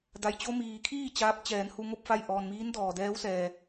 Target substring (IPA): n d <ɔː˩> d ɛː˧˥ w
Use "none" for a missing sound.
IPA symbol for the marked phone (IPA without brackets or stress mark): ɔː˩